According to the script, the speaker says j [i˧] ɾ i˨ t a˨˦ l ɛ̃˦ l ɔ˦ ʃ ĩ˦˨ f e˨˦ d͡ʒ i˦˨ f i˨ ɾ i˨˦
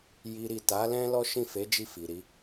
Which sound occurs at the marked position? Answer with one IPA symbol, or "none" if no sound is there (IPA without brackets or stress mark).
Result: i˨